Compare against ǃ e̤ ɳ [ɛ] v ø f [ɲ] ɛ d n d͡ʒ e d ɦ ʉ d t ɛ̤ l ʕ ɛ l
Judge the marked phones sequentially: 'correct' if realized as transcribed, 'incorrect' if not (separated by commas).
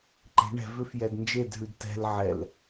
incorrect, incorrect